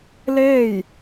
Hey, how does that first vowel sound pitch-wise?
falling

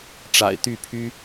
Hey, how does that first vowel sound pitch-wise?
low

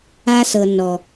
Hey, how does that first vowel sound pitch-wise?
high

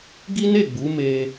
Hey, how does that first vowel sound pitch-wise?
high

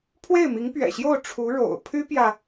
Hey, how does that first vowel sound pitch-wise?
falling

